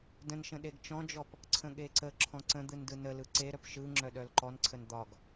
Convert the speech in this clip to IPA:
də̃nʃə̃ ɗeɡt͡ʃɔ̃d͡ʒɔp | ǀʰə̃ɠeǀəǁʰɔ̃ ǀə̃d̪ɯn dɯnəlɯ ǀeɾœp ʃɯŋ͡ǁœ ɗœlǃɔnǀʰən d̪ɒɡ

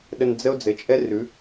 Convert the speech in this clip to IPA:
ɗə˧nd͡zə˦o̯ d͡zɘ˨t͡ʃʼɛ˦rʉ˨˦

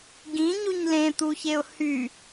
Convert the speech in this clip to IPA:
ɡĩɲuɲ lẽt̪uçeʊ̯ hy

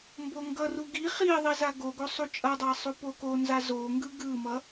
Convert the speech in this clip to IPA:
mboŋɡʌru ɡi χiðˤi zaɡoɡo sˤut͡ʃʼʌdˤa sˤupokonza zoŋɡɯ ɡɯmʌ

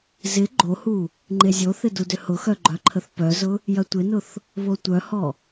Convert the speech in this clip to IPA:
zɪ ɡ͡ǃohu | ŋ͡ǃezʲoθɪ dudʏhʊxœ ɡ͡ǃœǃʰəθpœzʊ | jɐtʷɪnʊθ | βotʷœhɔ

